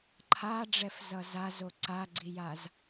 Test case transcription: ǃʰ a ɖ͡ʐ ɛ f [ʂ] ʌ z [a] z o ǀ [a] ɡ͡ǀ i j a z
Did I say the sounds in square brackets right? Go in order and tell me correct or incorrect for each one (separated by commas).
incorrect, correct, correct